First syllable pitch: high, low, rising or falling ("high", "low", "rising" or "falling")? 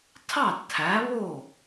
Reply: falling